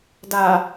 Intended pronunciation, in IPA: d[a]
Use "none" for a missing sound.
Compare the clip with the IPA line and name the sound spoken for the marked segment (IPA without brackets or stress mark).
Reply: a